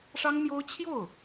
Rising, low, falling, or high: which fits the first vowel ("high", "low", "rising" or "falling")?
high